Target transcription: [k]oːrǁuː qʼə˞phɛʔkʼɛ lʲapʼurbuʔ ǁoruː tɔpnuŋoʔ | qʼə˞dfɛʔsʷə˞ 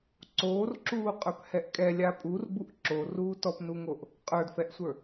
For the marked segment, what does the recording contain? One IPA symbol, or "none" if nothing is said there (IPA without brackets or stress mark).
ǀ